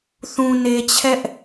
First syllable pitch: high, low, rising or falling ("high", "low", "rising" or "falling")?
low